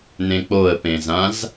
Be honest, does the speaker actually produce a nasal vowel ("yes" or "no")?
yes